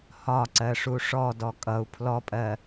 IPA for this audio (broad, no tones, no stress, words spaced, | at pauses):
hɒǀɜ ʂuʂɔdɔ kʼʌu̯ pʰlɔpʼɜ